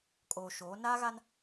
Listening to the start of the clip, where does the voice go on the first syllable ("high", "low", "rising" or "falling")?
low